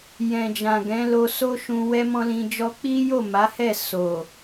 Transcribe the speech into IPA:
j ɛ̃˨ d͡ʒ ã˨ ɡ ɛ̃˨˦ l o˧ s o˦ ʃ ũ˧ w ɛ˦ m ɔ̃˦ l ĩ˧ d͡ʒ ɔ˦ k͡p i˦ j o˦˨ m a˨˦ h ɛ˦˨ s o˨

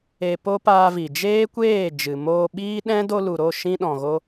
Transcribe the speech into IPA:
e˧ p o˦ p aː˧ v i˨ d͡ʒ eː˦ kʷ eː˦˨ d͡ʒ ɨ˨ m oː˧ ɓ iː˦ ɗ ɛ̃˦ d o˧ l u˨ ɾ o˦˨ ʃ ĩ˧ ɗ ɔ̃˨ ɣ o˧

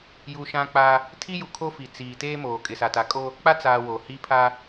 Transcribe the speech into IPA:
j u˨ ʃ ã˦ k͡p a˦ | tʰ i˦ j u˨ kʰ o˦ f i˨ t͡s iː˨ t eː˦ m oː˨ kʼ ɪ˨ s a˨ t a˨ kʼ o˦ | k͡p a˦ t͡s aː˨ w o˨ h i˦ pʰ a˦

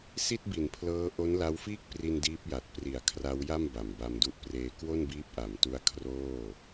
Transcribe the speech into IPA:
s i˥˩ t̚ b i˩˦ n pʰ l ɤː˦˥ ʔ o˦˥ n l a˦˥ w f iː˥˩ k̚ p r i˧ n d iː˦˥ p̚ j a˨˩ t̚ p r i˩˦ a̯ kʰ r a˦˥ w j a˥˩ m b a˨˩ m b a˧ m d u˦˥ ʔ p r eː˧ k w o˥˩ n b iː˦˥ p̚ ʔ a˩˦ m t u˦˥ a̯ kʰ r oː˥˩

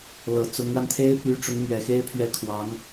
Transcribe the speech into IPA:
l ɤ˨˩ t͡s ʊ˧˥ ŋ ɻ a˧ n t̪ʰ e˥ ɪ̯ p y˧˥ ʈ͡ʂ ʊ˧˥ ŋ m ɥ ɛ˨˩ x e˥ ɪ̯ pʰ ɥ ɛ˧˥ kʰ w ɑ˧˥ ŋ

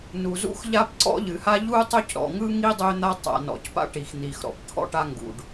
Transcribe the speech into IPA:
n u˩ z ṵ˥ x ʎ a˥ p ǀ ɔ̰˥ ʎ ɨ˩ h a˥ ʎ u˥ tˤ ø˥ c ɾ ɔ̰˩ ŋ ɯ˥ ŋ i˥ dˤ ø˥ n̪ a˥ tˤ a̰˩ n ɔ̰˩ c p a̰˥ ʈ i˩ x n̪ i˩ x ɾ ɔ̰˩ p t̪ʰ ɔ̰˥ ʈ a˥ ŋ ɡ ṵ˩ ɖ

